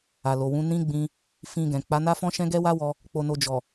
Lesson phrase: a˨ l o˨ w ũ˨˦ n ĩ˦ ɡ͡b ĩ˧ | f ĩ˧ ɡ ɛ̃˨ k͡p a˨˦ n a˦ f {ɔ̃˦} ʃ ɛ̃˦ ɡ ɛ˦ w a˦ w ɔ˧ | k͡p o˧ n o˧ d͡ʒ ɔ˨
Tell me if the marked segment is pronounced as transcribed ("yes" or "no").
yes